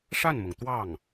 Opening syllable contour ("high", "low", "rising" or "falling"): falling